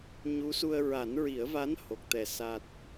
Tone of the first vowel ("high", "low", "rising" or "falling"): rising